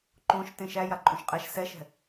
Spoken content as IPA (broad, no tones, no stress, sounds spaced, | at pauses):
ǃ õ ʃ t ẽ ʃ æ j a ǃʼ õ ʃ qʼ ɛ ʃ s ɛ ʃ ɛ̤